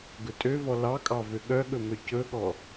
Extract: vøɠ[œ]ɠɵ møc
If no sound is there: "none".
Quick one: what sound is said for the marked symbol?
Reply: œ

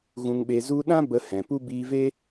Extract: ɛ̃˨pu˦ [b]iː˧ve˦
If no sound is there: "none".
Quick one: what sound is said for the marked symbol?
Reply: b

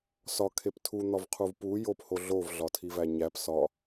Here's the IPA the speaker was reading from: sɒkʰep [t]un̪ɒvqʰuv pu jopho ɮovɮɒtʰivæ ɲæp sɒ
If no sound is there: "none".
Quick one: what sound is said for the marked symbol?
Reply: tʰ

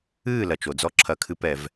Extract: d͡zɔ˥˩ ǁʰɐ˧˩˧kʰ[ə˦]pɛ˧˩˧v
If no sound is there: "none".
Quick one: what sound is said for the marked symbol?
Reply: ɨ˦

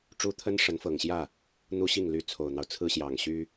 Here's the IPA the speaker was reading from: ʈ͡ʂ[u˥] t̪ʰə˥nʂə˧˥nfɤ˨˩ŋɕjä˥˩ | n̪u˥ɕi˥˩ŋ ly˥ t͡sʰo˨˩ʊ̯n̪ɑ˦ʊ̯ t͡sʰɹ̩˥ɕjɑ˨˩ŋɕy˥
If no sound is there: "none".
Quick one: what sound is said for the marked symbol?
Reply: u˥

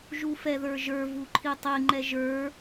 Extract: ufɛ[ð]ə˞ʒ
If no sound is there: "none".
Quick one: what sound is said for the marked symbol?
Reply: ð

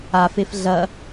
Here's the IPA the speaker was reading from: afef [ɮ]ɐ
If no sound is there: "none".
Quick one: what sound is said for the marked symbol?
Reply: ɮ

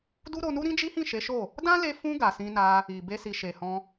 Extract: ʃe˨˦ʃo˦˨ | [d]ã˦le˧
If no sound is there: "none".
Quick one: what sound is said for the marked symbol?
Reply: d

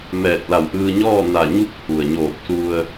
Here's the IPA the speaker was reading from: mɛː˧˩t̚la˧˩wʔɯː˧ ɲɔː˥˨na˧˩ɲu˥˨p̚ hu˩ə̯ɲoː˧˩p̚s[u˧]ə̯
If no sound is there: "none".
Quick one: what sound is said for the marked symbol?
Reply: u˧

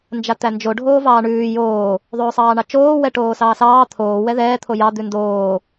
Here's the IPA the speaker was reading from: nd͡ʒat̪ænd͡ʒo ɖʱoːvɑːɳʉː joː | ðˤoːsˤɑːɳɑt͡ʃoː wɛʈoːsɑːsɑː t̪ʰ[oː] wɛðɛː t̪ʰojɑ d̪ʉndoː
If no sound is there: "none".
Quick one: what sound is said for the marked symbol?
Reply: oː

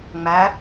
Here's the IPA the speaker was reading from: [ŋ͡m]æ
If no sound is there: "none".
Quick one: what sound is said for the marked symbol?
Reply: ŋ͡m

